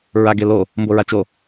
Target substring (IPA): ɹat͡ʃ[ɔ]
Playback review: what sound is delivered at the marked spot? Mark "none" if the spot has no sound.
o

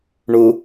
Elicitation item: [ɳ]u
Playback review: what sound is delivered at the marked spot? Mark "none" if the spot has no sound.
ɳ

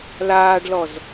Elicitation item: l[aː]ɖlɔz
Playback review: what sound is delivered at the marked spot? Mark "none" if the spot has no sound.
aː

